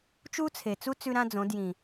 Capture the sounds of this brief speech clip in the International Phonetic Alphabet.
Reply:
t͡ʃ u˦ t͡sʰ e˨ t͡s u˦ t͡s ʉ˦ ɾ ã˦ d͡z õ˨˦ d j ĩ˨

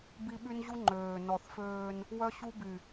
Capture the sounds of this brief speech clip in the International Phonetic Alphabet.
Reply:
b i˦ ɓ y˦ n ʑ u˦ ŋ͡ǃ øː˨ n ɔ˨ θ f øː˦ n | w œ˦ ɕ u˦ b y˨

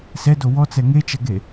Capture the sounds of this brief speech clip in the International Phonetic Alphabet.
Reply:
s ɛ d o w ɔ t͡s ɛ ŋ e t͡ʃ ɐ ɡ e

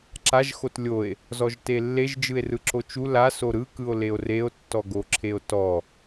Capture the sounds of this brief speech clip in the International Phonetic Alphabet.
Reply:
ǁ a ʒ x o t lʲ o e̯ | z ɔ ʒ t e lː e ʒ d͡ʒ ɯ e̯ r ɯ ǁ o t͡ʃ u l a s o ɾ ɯ k ɯ o̯ l e o̯ r e o̯ tː ɔ ɡ o ǁʰ e o̯ t ɔ

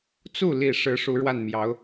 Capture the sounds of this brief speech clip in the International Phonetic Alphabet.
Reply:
t͡s u˥˩ l i˨˩ ʂ ɻ̩˧˥ ʂ u˧˥ ɻ w a˥˩ n m j ɑ˧˥ ʊ̯

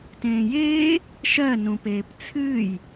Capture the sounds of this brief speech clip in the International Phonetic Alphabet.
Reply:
t ẽː j eː | ʃ ɜ n ũ p eː p t͡sʰ ɨː j

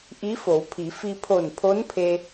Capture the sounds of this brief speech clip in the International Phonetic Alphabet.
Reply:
ʔ i˧˥ f o˩˧ w pʰ i˩˧ f i˧ pʰ o˧˩ n pʰ o˧˥ n pʰ e˧

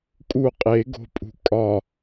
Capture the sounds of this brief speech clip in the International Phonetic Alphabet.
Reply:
kʼ u qʼ e ɡ o̤ pʼ ṳ kʼ ɒ

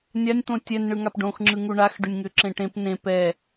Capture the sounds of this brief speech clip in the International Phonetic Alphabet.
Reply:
nʲ a nʲ t̪ õ tʲ ɛ n ɳ ɯ ŋ a p ɖ õ x ŋ͡ǁ ɯ ŋ u ɳ a x ɖ ʏ nʲ ŋ ʏ ǁ ẽ ʈ ẽ p n ẽ p ɛ

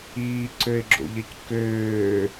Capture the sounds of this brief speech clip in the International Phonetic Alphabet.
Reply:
iː ǀ ø ɪ̯ ɡ͡ǁ o̰ ʎ ɐ c k øː

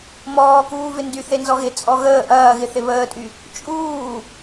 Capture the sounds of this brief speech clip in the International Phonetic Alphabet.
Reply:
m ɔː k uː v ɪ n d y θ e n z ɔ ɣ ɪ t͡sʼ ɔ ɣ əː ʔ ɐː ɣ ɪ θ ɪ β əː tʼ y | t͡ʃʼ uː

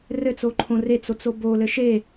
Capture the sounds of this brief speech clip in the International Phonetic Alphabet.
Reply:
r ɘ t͡s o ǃʰ õ r e t͡s o t͡s o b o l ɘ ʃ e

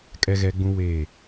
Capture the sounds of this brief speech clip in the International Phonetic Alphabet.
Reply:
kʼ ɛ˦ ɣ ɛ˦ ɡ͡b ũ˦ w eː˦˨

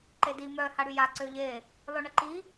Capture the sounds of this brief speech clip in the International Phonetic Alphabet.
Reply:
ǃ e d i m œ h a ɽ y j a ǀ ø ʎ e | lˠ ø ɳ ə ǃ i

